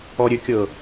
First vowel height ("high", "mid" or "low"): mid